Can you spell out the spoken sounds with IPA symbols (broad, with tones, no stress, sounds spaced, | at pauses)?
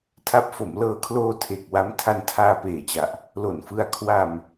tʰ a˦˥ p̚ f o˩˦ m l ɤː˧ kʰ l oː˧ tʰ e˨˩ k̚ w a˦˥ m tʰ a˧ n tʰ aː˧ p eː˨˩ t͡ɕ a˨˩ ʔ | l o˨˩ n f ɯ˧ a̯ kʰ w a˧ m